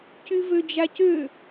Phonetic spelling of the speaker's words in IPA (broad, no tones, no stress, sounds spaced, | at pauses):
c y v ø d͡ʒ a c ø